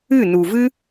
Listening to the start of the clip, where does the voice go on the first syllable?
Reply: falling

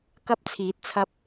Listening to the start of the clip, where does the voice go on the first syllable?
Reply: high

